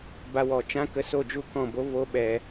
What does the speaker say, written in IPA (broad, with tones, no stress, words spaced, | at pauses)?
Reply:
ba˧wɔ˨t͡ʃã˦ kə˧ so˦˨d͡ʒu˦˨kɔ̃˦˨bo˦ vo˦ɓɛ˧